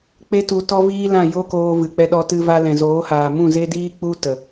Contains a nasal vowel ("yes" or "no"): yes